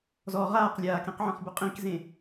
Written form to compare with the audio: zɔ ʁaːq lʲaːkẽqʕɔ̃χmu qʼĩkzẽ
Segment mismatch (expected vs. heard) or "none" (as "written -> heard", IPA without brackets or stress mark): m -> b